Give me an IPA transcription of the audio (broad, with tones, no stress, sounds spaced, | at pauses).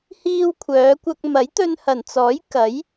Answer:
h iː˧ w kʷʰ œː˨˧ kʷ ɐ˧ k̚ m ɐ˨˥ j t̪ ɵ˧ n h ɐ˨˩ n t͡s ɔː˨˥ j k ɐ˨˥ j